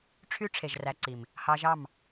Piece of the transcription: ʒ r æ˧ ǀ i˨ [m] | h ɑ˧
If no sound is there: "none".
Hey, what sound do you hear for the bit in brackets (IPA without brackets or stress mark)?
m